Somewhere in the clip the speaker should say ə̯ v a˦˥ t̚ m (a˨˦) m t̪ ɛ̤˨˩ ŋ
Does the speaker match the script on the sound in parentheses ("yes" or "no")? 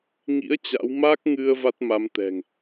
yes